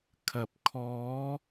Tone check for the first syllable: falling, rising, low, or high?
low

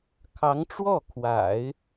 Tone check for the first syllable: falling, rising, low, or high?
rising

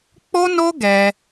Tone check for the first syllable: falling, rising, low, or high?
high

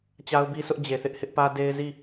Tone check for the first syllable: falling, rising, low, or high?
high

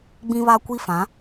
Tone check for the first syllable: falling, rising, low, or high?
high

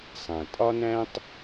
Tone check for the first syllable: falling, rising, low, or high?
low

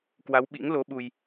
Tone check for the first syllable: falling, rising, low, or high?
rising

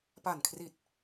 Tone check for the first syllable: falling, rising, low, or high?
low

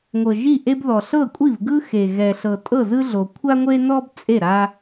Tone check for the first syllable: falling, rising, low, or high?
low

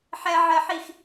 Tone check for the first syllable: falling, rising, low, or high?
high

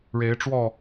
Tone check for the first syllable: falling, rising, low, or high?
rising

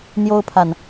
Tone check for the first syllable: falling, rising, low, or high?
high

